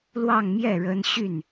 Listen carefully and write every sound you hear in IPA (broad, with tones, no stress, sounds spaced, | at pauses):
l w ɑ˥˧ ŋ m j ɛ˥˩ ɻ ə˥ n ɕ y˥˩ n